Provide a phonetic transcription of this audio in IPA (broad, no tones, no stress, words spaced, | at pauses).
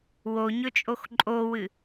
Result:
woɲɵt͡ʃʼox ǃʼowɨ